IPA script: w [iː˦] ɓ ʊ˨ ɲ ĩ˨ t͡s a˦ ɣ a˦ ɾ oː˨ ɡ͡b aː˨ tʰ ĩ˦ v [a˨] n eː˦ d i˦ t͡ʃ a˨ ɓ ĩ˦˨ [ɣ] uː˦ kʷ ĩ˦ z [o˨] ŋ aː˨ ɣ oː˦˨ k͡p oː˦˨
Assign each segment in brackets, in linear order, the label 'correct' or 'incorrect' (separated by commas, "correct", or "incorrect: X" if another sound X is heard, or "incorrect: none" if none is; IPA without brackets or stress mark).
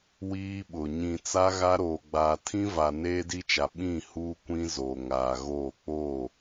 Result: correct, correct, incorrect: h, correct